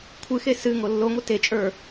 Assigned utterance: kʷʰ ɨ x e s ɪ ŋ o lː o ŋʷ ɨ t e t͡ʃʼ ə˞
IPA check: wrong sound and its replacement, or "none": ɪ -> ɨ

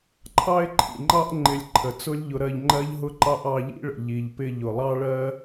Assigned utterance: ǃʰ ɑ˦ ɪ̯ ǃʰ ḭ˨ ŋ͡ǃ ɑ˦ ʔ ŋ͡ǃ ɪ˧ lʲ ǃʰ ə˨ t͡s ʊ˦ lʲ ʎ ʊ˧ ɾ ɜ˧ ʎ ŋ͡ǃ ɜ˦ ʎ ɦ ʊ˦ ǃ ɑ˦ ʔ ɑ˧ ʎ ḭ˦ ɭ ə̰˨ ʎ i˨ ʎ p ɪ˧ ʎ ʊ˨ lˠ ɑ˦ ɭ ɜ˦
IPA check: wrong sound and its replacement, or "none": none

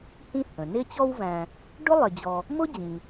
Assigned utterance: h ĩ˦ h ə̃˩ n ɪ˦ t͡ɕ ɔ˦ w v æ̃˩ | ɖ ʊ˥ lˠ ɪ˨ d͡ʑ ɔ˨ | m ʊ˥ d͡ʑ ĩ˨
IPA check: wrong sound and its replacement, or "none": æ̃˩ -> æ̃˨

